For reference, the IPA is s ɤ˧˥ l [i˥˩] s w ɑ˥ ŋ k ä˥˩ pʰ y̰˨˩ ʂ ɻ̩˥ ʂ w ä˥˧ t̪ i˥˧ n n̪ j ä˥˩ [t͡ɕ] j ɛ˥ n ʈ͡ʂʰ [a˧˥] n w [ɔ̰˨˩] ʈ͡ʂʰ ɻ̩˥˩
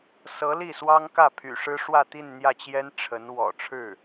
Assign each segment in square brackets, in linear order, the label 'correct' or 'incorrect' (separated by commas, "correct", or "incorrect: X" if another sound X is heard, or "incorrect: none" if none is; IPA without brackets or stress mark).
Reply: correct, correct, incorrect: ə˧˥, correct